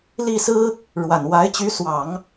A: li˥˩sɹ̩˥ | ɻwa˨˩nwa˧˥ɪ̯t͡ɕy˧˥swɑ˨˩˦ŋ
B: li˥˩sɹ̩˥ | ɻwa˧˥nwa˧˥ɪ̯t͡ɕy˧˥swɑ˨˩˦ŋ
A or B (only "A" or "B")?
A